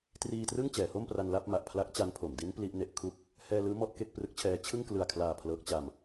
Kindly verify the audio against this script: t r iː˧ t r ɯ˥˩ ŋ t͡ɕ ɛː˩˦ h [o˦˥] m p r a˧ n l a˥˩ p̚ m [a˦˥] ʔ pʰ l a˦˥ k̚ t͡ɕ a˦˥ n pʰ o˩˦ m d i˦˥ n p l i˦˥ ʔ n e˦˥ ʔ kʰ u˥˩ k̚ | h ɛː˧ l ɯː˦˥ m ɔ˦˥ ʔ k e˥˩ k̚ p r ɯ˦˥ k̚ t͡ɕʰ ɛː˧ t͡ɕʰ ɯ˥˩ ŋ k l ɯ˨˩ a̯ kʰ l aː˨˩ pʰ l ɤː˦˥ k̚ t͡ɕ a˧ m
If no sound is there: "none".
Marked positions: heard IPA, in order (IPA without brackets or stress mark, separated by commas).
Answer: o˥˩, a˨˩